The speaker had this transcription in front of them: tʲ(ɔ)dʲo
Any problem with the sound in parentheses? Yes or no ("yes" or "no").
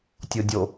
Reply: yes